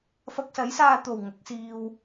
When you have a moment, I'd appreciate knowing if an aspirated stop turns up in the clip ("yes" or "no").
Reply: no